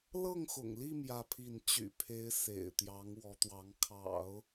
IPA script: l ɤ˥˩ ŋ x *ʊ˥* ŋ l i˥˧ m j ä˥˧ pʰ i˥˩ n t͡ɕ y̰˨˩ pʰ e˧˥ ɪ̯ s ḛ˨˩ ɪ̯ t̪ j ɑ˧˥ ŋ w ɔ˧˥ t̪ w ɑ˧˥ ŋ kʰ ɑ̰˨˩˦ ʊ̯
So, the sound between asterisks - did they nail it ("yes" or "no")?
no